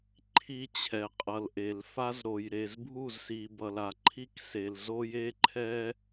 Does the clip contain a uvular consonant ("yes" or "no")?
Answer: yes